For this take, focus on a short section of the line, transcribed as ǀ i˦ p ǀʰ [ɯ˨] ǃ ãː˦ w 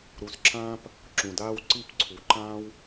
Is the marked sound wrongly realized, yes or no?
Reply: yes